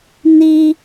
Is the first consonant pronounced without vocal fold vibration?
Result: no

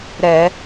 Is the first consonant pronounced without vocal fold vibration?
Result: no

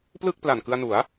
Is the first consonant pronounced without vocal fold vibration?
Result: yes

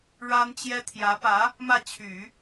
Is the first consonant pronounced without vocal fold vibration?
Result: no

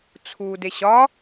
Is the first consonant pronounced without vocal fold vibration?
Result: yes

